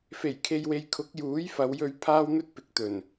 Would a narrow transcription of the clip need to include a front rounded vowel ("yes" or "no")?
no